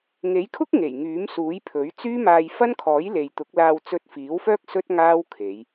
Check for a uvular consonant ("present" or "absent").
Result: absent